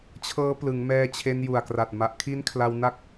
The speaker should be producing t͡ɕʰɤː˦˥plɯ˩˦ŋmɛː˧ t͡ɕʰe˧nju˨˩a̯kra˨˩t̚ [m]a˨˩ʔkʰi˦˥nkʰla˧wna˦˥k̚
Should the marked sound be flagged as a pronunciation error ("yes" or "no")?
no